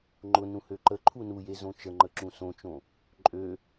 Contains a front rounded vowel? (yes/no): yes